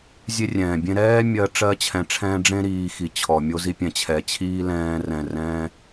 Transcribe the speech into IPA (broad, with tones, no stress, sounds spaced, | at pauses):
zʲ e˦ rʲ ɛ̃ː˨ bʲ ẽ˦ ɾ ɛː˦ mʲ ɜ˧ ʈ͡ʂ ɜ˧ t͡ɕʰ ɛ̃˨ ʈ͡ʂʰ ɛ̃ː˧ ɖ͡ʐ ẽ˦ ɾ iː˧ x i˨ t͡ɕʰ ɔ˨ mʲ o˧ z i˧ pʲ ɛ̃˨ t͡ɕʰ ɛ˨ t͡ɕʰ iː˦ l ɛ̃ː˧ r ɛ̃˨ r ɛ̃ː˧